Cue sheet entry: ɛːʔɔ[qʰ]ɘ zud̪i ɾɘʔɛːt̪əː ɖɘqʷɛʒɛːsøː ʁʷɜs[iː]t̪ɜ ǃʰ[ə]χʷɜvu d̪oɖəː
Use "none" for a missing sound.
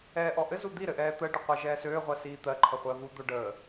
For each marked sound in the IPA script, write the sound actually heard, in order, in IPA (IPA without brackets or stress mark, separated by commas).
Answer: ʔ, iː, ə